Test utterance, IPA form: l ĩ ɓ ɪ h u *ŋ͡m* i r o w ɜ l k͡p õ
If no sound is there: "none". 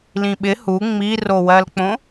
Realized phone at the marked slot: ŋ͡m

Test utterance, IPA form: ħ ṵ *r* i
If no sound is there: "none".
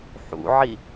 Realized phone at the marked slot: ʕ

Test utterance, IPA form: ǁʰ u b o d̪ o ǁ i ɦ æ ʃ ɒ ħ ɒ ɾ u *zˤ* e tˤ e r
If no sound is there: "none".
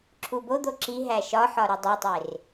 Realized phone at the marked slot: dˤ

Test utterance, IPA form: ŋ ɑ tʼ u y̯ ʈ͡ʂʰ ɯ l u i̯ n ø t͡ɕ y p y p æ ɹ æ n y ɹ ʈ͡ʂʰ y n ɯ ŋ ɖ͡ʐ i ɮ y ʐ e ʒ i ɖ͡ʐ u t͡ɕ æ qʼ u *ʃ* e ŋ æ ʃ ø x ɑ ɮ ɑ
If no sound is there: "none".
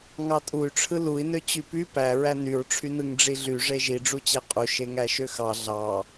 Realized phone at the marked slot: ʃ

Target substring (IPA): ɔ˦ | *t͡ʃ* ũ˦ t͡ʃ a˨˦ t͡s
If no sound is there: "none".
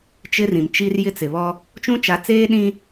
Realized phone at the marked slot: t͡ʃ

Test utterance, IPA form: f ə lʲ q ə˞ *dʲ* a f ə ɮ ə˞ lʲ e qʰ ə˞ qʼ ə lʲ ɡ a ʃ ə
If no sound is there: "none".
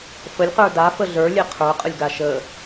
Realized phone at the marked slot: d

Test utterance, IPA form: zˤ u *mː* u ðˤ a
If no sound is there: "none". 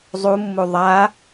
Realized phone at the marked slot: mː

